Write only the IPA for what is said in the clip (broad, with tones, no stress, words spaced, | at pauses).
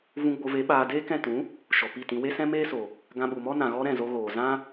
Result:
vũ˧ɡ͡bo˧ve˨˦ ɓaː˧ deː˦kɛ̃˦˨ tũ˨˦ | ʃɔ˨pi˦˨tĩ˧ we˦sɛ̃˦meː˦so˨ | ɡã˧ɓu˨mɔ˦ nã˨ɣɔ˧ ɾɛ̃˦˨zo˧ɣoː˨ zã˦